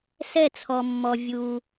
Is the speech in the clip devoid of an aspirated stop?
no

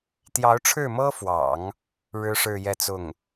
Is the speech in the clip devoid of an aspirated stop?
no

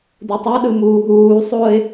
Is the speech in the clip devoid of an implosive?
no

